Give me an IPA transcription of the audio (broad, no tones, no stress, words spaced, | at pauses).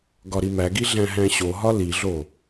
ɡɒɾimæɡi ɮæ̃ɦæ̃ɕoɦɒ liɮo